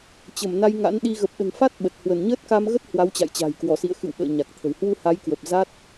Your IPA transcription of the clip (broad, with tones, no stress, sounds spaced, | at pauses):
t͡ɕ ə˧˩ m n a˧ j ŋ a̰˧˥ n ɗ i˧ ɣ ə˨˩ p̚ ɗ ə̤˨˩ n f a˦˥ t̚ ɓ ə˨˩ t̚ h w ə˧˩ n ɲ əː˦˥ t̚ k a˧ m ɣ ə˦˥ t̚ h w a˨˦ w t͡ɕ a̰˧˨ j t͡ɕ a̤˨˩ j k w ɔ˧˩ s ḭ˧˨ ə̯ x ɨ̰˧˨ w ɓ ə̰ː˧˨ ɲ a˨˩ k̚ t̪ʰ ə̤˨˩ w h w u˧ h a˨˦ j k w ə˨˩ p̚ z a˦˥ t̚